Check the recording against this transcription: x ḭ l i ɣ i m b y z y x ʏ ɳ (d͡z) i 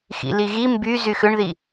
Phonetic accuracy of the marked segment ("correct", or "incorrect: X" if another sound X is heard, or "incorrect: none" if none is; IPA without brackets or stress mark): incorrect: ð